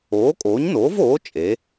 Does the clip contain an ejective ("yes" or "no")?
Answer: yes